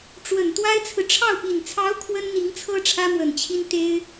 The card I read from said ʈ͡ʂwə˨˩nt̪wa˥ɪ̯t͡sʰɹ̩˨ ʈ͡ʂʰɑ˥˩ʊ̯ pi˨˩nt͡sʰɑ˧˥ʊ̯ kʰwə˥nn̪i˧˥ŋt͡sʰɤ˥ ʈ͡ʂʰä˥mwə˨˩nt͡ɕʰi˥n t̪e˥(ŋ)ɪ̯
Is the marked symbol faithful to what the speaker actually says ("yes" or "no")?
no